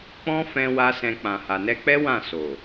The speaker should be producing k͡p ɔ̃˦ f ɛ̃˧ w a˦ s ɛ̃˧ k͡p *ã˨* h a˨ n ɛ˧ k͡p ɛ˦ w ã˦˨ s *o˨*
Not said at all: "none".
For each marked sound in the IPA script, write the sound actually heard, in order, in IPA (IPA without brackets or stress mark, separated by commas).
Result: ã˨, o˨